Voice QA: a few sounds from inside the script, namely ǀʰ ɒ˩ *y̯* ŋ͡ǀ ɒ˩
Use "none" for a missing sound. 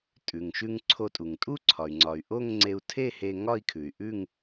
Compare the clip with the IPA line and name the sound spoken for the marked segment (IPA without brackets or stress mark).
y̯